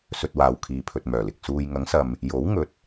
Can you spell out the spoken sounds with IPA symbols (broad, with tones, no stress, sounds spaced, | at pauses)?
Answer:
s ɵ˧ t̚ w aː˨ w kʰ iː˨ pʰ ɵ˨ t̚ m œː˨˩ l ɪ˨ k̚ s uː˨ j ŋ ɐ˨˥ ŋ s ɐ˨ m | j o˨˥ w ŋ ɵ˨˥ t̚